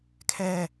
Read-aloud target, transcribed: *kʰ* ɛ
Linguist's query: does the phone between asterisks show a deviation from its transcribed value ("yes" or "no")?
no